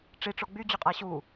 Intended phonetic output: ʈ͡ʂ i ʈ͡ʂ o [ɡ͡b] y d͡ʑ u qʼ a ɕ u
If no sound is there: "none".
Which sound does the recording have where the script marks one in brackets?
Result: ɡ͡b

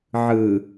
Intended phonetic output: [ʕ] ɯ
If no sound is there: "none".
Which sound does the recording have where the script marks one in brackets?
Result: ʕ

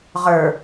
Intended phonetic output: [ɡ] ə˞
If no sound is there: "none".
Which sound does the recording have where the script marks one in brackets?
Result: ʁ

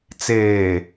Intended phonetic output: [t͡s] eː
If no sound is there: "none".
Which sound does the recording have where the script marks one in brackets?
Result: t͡s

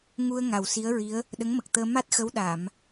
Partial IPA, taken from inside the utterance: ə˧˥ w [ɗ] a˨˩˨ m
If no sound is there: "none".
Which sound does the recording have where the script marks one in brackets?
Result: ɗ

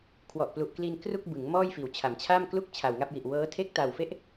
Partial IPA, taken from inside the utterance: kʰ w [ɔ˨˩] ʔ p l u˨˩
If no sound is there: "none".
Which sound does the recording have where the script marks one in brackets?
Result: ɔ˨˩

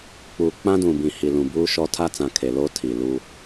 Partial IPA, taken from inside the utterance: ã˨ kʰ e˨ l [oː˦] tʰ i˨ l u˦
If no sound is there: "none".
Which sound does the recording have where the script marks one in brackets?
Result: o˦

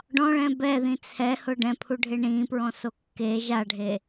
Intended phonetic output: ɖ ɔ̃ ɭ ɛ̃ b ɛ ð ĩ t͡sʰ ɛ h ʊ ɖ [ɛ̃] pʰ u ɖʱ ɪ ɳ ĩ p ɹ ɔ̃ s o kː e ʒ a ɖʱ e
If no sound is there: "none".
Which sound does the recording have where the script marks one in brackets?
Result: ɛ̃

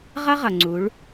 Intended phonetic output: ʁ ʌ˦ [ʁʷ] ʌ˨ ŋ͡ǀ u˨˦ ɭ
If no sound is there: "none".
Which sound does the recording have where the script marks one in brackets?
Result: ʁ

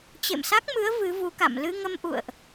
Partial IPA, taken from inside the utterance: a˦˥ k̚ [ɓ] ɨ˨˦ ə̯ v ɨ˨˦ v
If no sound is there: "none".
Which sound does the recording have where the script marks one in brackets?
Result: m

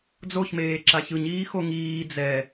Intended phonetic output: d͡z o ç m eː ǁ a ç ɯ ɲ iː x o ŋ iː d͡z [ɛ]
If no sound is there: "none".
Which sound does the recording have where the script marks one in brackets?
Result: ɛ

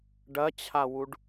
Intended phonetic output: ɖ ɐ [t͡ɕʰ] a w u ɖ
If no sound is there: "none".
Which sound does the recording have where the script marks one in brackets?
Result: t͡ɕʰ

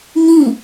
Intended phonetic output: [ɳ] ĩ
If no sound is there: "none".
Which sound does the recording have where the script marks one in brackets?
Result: ɲ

